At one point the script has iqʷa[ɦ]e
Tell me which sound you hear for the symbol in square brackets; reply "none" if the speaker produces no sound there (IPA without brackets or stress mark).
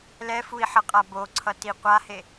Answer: h